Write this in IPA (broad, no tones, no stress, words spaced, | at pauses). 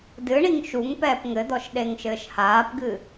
dɨɳiŋ ʃuŋ pɛːpŋɘd̪ɔʃ ɗeŋʃɘːʃhaːpɡɨ